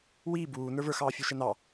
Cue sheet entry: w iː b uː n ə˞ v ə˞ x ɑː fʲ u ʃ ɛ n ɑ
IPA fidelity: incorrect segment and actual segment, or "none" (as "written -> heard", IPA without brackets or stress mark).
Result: none